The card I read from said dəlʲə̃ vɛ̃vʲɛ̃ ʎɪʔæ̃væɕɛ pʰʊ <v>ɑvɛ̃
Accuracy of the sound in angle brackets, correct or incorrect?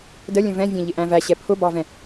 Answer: incorrect